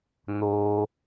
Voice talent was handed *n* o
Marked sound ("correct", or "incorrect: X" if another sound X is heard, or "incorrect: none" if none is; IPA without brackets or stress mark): correct